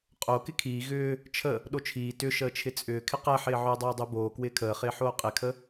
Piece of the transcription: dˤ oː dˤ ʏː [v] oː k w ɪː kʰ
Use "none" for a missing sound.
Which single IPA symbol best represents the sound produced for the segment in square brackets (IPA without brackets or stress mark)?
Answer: b